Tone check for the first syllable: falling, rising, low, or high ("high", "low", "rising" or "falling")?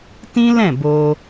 high